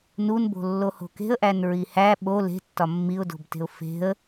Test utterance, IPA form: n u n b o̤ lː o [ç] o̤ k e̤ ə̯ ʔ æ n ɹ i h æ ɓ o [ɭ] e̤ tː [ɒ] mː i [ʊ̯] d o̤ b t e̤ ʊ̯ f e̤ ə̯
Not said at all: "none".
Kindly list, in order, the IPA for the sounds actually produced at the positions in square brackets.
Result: h, l, ɒ, ʊ̯

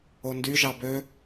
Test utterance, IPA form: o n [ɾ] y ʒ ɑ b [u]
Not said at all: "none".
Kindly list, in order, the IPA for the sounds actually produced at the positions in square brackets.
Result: d, ø

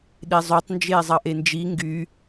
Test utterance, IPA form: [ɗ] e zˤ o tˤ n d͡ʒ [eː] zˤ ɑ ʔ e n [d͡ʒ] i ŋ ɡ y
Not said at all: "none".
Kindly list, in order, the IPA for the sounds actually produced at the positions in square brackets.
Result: ɗ, eː, d͡ʒ

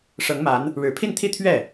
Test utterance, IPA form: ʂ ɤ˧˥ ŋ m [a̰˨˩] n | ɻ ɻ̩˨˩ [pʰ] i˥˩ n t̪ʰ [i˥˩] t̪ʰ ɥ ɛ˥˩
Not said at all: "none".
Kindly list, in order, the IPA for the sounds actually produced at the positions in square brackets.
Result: a˧˥, pʰ, i˥

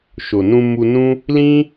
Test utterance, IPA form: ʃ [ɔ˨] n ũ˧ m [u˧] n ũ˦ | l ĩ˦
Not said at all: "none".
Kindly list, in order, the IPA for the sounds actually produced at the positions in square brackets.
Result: o˨, u˧

